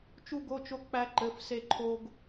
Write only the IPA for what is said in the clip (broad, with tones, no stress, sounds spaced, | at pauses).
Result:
t͡ʃ u˥ ɡ o˧˥˧ t͡ʃ o˥ k͡p æ˥ ǃ ɘ˧˥˧ f s e˥ ǃʰ o˥ ɡ